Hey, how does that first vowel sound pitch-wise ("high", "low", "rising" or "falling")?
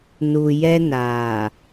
low